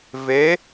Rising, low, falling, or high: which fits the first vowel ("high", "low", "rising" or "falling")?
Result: rising